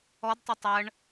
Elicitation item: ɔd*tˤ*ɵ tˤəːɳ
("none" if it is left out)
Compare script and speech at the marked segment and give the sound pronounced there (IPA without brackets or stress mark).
tˤ